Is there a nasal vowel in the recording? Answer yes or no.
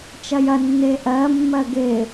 no